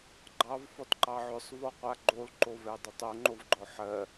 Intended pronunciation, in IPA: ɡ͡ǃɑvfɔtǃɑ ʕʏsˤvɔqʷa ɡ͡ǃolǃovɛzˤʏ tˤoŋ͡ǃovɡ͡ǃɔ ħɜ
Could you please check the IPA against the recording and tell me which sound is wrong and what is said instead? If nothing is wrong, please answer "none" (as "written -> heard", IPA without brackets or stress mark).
zˤ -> dˤ